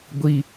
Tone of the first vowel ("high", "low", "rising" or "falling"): high